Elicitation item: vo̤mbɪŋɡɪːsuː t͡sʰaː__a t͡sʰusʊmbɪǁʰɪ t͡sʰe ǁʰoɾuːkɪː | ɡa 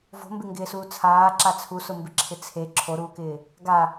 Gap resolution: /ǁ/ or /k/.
ǁ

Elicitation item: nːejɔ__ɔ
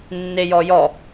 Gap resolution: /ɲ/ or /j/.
j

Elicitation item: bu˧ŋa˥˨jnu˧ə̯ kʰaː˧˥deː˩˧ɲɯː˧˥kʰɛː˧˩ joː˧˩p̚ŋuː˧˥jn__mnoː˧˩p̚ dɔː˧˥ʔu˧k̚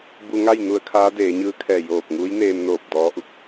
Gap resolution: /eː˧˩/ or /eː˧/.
eː˧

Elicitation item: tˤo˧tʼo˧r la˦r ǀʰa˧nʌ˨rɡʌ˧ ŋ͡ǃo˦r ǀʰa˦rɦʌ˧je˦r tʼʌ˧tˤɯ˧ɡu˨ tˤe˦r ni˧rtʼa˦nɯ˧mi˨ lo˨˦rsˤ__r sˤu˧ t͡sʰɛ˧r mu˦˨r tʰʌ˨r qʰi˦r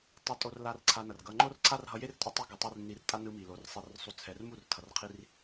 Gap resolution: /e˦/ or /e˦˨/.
e˦˨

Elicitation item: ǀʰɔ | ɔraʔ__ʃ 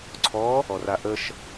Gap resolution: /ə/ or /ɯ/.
ə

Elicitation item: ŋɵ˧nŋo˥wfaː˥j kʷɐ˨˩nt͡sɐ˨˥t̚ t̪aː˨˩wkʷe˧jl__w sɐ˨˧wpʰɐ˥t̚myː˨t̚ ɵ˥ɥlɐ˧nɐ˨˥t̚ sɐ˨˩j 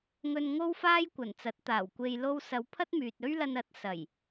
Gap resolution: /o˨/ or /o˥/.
o˥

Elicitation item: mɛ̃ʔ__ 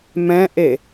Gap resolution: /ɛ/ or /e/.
e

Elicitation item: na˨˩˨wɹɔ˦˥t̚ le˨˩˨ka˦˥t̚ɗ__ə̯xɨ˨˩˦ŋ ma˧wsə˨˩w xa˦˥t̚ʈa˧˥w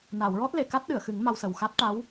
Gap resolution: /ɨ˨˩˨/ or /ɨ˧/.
ɨ˨˩˨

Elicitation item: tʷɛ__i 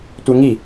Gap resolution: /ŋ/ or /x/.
ŋ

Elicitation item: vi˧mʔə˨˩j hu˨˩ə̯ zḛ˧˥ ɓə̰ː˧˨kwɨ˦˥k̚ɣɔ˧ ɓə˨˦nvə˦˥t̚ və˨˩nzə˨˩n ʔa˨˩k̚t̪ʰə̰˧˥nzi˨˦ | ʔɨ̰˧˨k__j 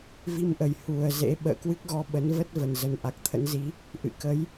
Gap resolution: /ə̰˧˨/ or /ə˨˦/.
ə˨˦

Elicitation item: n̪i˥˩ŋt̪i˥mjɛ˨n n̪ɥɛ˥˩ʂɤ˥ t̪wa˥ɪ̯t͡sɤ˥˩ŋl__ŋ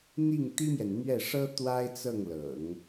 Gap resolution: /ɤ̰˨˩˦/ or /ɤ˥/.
ɤ̰˨˩˦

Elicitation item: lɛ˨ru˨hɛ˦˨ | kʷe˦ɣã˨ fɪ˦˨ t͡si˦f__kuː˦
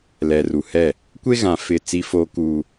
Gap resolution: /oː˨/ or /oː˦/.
oː˦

